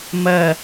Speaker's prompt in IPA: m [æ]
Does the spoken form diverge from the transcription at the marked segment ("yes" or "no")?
yes